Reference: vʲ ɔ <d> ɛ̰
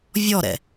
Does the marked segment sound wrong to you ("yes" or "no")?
yes